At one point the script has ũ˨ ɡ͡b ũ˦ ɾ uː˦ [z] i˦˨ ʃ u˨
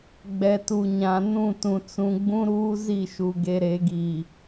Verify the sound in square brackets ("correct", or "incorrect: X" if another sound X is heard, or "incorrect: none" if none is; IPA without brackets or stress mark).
correct